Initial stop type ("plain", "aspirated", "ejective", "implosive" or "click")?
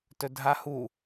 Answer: plain